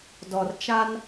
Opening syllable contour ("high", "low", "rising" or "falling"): low